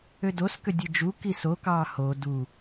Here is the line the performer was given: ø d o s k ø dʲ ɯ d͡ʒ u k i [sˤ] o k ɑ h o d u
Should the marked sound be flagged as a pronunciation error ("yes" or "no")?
yes